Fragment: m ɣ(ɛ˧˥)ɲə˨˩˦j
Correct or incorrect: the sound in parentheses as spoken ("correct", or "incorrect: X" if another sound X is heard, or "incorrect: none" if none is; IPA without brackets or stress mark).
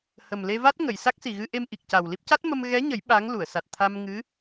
correct